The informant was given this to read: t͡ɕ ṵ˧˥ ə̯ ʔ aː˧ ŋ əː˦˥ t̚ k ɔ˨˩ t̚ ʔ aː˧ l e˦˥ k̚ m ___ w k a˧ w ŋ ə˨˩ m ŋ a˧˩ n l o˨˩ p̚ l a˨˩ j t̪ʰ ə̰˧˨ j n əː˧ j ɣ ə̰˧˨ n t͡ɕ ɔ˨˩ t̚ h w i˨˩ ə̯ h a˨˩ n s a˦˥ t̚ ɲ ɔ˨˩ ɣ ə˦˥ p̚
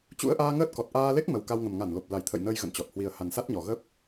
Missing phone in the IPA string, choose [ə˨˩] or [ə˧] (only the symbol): ə˨˩